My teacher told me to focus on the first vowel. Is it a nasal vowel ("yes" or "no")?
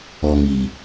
no